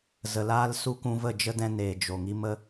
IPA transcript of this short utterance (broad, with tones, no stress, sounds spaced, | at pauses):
z ə˨ l aː˦ l s u˦ k ũ˧ v ə˦˨ d͡ʒ ə˦ d ɛ̃˧ n eː˨ d͡ʒ o˨ ŋ i˦ m ə˦